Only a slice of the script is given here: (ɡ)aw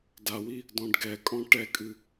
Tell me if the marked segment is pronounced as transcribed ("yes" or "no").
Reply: no